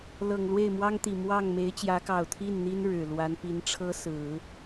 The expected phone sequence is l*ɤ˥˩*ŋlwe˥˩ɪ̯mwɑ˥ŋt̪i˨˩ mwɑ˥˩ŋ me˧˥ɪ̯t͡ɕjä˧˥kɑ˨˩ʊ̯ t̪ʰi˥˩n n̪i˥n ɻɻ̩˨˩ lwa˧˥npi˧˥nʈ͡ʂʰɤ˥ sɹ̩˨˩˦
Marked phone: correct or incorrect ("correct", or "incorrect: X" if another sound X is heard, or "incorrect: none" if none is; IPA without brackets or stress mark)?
incorrect: ɤ˨˩